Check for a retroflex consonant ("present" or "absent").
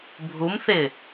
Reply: absent